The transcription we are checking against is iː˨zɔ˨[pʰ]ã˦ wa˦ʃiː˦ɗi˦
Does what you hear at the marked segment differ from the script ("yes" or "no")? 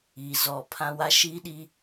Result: no